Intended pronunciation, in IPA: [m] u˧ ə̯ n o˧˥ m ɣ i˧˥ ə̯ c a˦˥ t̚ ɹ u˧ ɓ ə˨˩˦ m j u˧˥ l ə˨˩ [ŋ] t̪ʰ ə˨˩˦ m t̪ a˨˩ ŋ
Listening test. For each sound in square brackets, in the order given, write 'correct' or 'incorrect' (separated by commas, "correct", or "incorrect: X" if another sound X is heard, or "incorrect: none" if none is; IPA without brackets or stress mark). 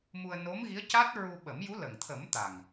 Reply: correct, correct